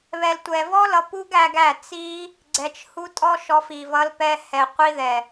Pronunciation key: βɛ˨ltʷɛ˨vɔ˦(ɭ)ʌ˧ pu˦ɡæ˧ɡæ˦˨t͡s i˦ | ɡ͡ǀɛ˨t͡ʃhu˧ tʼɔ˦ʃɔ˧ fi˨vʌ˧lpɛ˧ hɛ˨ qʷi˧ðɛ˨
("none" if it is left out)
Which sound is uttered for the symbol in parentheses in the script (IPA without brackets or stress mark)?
l